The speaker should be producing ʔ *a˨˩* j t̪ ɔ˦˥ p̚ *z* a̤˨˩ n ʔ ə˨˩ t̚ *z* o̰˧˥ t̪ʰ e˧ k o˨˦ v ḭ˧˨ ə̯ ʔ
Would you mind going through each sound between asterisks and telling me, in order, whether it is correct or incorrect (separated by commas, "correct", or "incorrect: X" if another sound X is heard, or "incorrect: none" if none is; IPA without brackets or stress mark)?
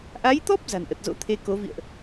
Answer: incorrect: a˨˦, correct, correct